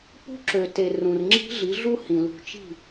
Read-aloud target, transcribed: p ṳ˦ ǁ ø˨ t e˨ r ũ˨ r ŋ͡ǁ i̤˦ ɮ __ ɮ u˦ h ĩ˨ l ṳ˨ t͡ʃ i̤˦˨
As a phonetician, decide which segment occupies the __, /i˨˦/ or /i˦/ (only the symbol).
i˨˦